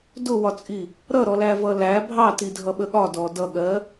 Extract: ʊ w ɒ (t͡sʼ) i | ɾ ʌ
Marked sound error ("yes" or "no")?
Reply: no